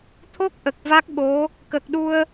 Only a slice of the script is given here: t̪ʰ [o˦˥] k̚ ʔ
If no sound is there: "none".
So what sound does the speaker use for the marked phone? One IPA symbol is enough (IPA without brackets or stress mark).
o˦˥